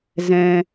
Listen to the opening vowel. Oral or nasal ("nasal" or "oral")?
nasal